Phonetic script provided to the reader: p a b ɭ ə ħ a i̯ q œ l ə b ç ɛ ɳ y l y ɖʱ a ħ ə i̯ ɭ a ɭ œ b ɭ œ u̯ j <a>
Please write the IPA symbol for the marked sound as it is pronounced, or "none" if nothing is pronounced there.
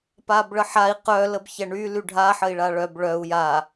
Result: a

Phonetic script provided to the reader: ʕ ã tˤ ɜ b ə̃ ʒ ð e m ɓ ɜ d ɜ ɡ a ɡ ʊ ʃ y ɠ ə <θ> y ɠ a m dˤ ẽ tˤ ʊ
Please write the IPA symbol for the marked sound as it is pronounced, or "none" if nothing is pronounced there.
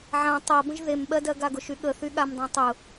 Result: θ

